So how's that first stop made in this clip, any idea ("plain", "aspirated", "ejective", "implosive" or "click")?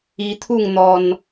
aspirated